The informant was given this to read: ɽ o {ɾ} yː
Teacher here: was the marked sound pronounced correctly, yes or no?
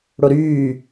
yes